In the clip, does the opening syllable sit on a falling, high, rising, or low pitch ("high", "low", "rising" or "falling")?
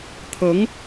rising